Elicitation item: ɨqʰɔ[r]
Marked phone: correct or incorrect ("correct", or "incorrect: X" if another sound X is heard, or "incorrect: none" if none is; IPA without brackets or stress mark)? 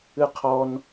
incorrect: n